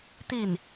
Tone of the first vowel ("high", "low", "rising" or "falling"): falling